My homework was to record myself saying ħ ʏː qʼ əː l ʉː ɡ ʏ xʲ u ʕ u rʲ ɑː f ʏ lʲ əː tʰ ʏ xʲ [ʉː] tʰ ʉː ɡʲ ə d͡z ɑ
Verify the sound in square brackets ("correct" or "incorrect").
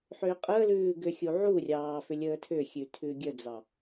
incorrect